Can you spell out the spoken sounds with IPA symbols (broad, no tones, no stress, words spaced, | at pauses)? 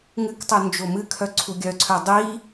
ŋɨktˤœ nd͡ʒomɨkʰœ ǀʰuɡʲœǀʰœ dˤi